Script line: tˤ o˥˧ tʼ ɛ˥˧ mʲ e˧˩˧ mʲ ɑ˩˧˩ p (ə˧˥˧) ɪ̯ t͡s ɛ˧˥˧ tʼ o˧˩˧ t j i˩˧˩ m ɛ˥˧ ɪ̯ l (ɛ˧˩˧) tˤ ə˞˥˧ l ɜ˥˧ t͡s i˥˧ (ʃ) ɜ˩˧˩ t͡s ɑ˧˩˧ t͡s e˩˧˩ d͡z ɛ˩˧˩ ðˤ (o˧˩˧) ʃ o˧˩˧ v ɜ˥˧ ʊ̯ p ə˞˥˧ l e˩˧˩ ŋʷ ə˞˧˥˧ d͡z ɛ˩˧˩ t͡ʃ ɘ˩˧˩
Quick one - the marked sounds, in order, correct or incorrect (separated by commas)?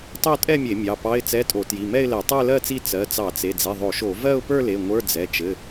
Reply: incorrect, correct, incorrect, correct